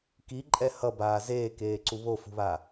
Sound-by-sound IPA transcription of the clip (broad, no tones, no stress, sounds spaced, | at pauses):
k i ǃʼ ɛ h ʌ b aː z eː k eː ǀ u β o f ṳ β a